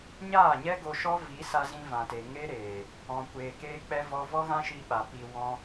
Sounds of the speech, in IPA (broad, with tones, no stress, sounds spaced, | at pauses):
ɲ aː˦˨ ɲ ɛ˦ ɡ o˧ ʃ ɔ˦ v i˨˦ s a˧ z ĩ˧ v ã˨ t e˨ ŋ e˦ ɾ eː˨ | ɔ̃˨ kʷ eː˨ k eː˧ k͡p ɛ˦ v ɔ˦ v ɔ˦ ɣ ã˦ ʃ i˧ ɓ a˨ p i˧ w ɔ̃˦